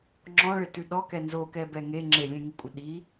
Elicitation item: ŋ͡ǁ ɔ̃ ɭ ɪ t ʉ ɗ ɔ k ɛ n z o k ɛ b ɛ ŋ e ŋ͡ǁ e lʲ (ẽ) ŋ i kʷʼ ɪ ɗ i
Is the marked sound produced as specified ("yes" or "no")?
yes